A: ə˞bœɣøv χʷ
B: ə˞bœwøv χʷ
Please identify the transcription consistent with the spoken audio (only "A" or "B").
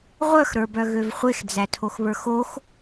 A